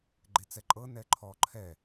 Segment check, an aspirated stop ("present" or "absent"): present